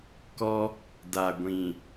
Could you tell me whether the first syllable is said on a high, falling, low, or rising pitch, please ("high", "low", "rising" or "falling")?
high